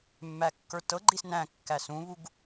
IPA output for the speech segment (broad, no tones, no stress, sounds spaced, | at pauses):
mː æ kː ə˞ t ɤ ɡ͡ǃ i s n æ̃ kː æ s ũ β u ɡ